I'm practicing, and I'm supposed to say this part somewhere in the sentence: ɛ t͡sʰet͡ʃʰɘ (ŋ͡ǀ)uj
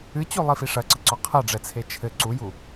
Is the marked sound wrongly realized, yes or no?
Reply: yes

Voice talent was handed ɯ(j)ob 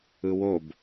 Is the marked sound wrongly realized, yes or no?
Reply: yes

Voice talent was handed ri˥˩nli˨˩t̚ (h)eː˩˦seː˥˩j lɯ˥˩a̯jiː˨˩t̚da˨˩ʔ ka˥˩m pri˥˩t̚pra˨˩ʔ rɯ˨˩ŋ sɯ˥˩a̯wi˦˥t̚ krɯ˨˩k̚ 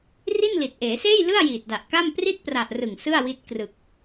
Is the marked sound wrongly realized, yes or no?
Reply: yes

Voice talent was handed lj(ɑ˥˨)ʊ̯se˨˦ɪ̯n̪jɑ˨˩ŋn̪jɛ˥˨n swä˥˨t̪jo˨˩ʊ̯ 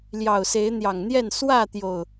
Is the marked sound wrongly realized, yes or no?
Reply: yes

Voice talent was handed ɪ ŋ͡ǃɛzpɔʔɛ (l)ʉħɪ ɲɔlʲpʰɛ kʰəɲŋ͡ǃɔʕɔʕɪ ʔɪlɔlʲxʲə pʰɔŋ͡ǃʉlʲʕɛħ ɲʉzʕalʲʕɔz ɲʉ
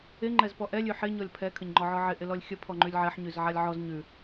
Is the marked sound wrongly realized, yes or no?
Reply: yes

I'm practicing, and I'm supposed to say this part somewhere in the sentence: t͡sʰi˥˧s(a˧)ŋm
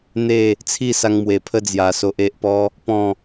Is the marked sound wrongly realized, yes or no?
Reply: no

